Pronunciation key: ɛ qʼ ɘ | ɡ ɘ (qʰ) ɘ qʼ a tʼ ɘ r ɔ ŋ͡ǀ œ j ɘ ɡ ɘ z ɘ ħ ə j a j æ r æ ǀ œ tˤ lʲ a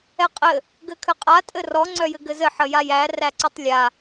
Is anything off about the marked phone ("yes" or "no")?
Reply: yes